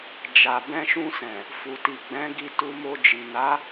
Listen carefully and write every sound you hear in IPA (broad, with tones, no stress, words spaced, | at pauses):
d͡ʒa˨ bɛ̃˧ʃũ˧sɛ̃˨ | fu˨ti˨ ɡ͡bɛ̃˨˦ɡi˧ tu˧mo˧d͡ʒi˨ na˨˦